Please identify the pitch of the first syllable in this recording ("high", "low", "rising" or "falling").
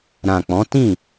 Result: low